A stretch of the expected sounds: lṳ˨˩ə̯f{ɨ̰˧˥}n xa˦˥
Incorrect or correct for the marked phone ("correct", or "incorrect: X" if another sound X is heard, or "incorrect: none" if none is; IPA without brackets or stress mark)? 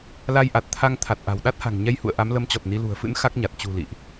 correct